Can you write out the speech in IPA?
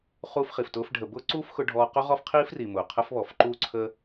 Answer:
χuː˦fχi˨ftʊː˦f ɖʱə˨bʊː˦ǀuː˦f xʊ˦ɖʱɔː˦ qʊ˦ʁɔ˦f qʰiː˦fri˨ mʊː˨qʰə˦f βɔ˨fǃuː˦ǀʰəː˦

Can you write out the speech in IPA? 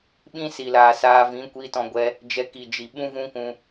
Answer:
ɓĩ˦si˨laː˨saː˧ vĩ˨˦kʷi˧tɔ̃˧ ɡʷɛ˧ | d͡ʒɛ˧ki˨d͡ʒi˨ ɓũ˦vũ˦kũ˧

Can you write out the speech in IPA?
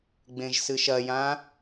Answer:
ɡ͡bẽʒsɨʃɐjã

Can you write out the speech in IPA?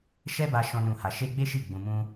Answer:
ʃɛ˦ba˧ ʃɔ̃˦nũ˦˨ha˧ ʃe˦ ɡ͡be˦ʃi˦˨ ɡ͡bũ˧mũ˦

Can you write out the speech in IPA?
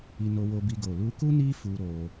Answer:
i˧no˧wo˧bi˧ ɡo˨lu˧ku˦ ni˦fu˧ ɾo˧

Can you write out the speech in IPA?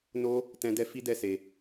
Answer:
no˦ | tɛ̃˦dɛ˦ fi˦dɛ˦˨ se˧

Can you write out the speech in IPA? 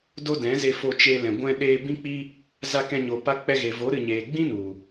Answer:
do˦dɛ̃˨˦ze˧fo˧ t͡ʃe˧lɛ̃˨ ɡʷɛ̃˧ɗeː˧ bĩ˦k͡pi˦ | za˧kɛ̃˧ ɲo˧pa˦ k͡pɛ˧ɣe˨vo˨˦ ɾɨ˨ɲeː˨ɡ͡bĩ˦ nu˨

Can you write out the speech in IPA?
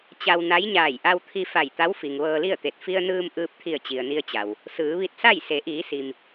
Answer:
t͡ɕa˧wna˧˥jɲaː˧˩j ʔa˧wt̪ʰi˧ fa˧˩jt̪a˧˥wfi˩ŋ ʋɤː˧li˥˨ə̯t̪e˧˩t̚ fi˧ə̯nɯː˧m ʔɯː˧p̚t̪ʰi˧˩ə̯ t͡ɕi˩ə̯ni˧ə̯t͡ɕa˩w | sɯː˩˧ʋi˧t̚sa˥˨j se˩˧ʔiː˩˧si˩m

